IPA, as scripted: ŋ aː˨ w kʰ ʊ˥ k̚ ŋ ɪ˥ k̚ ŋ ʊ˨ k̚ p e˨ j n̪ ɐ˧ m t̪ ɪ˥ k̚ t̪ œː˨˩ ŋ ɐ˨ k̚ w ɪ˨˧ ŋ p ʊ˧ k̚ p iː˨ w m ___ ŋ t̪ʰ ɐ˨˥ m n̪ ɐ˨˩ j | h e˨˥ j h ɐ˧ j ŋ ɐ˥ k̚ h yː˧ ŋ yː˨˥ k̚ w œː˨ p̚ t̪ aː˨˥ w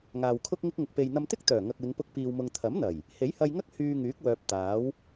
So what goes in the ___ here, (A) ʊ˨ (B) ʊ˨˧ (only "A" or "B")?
A